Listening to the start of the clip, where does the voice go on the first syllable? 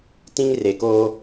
high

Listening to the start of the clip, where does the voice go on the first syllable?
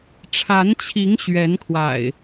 rising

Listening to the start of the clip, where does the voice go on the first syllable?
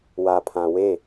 low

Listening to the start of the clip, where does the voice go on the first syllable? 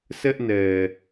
high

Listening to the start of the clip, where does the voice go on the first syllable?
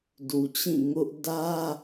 low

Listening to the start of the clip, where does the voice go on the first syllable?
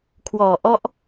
low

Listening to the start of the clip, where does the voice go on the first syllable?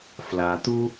low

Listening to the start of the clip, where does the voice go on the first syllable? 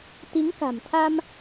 rising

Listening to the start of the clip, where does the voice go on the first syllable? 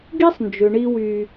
high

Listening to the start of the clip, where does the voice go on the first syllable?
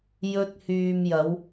high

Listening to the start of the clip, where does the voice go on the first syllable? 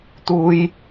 high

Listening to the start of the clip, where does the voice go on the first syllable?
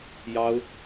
high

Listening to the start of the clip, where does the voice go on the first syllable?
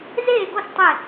falling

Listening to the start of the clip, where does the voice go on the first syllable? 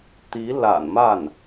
rising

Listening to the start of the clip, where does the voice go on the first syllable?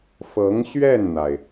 rising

